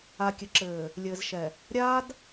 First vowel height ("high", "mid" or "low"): low